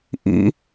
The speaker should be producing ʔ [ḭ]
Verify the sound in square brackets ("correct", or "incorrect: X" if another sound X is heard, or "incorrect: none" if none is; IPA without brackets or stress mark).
correct